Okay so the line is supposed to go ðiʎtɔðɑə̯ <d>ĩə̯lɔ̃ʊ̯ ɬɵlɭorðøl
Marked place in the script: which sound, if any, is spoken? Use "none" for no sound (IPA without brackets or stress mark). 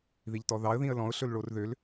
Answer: ð